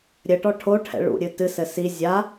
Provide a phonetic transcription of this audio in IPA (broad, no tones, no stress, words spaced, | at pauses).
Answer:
ɾʲɘʈɔ ʈʰoʈʰɛ̰ɭṵɾʲɨ tɨsɘ si zʲa